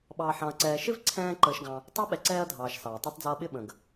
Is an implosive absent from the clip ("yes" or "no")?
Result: no